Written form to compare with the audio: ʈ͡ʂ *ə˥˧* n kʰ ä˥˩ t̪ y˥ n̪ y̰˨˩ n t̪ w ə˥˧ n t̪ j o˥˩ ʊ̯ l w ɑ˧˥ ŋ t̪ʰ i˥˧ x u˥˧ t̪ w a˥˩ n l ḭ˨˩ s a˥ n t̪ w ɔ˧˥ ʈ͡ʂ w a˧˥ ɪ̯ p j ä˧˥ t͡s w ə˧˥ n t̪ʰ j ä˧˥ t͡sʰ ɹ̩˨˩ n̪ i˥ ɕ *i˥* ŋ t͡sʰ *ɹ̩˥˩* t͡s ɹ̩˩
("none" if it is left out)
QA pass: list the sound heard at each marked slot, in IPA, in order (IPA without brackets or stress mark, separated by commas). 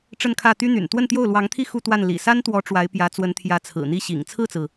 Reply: ə˥˧, ḭ˨˩, ɹ̩˥˩